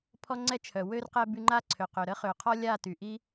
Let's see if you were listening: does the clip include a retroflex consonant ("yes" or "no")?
no